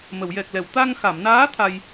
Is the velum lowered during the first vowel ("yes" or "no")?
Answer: no